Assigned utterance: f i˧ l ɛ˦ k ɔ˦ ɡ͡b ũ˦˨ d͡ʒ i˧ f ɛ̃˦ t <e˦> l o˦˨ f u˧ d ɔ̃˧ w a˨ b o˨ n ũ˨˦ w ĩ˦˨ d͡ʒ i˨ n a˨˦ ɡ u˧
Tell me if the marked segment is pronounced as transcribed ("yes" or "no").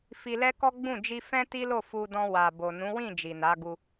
no